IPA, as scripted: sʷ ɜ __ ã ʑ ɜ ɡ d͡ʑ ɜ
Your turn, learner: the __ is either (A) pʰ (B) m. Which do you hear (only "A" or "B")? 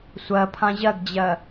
A